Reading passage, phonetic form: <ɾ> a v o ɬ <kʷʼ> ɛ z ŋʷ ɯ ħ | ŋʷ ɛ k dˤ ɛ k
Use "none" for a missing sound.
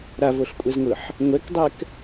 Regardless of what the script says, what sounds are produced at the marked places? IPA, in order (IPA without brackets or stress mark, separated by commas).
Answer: ɾ, kʷʼ